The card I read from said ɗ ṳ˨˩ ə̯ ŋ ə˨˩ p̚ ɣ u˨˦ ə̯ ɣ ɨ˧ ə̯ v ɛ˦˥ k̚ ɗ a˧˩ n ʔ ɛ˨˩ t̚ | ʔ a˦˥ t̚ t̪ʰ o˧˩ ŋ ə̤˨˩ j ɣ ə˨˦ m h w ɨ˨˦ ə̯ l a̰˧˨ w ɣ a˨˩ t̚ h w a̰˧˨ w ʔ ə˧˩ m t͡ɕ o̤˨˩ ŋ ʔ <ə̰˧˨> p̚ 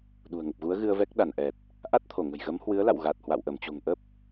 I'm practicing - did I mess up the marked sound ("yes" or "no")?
yes